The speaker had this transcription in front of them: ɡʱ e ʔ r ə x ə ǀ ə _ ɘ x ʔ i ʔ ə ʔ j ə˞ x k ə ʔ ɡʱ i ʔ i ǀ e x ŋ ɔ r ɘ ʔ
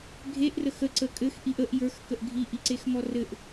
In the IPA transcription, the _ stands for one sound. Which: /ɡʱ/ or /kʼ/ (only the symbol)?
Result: kʼ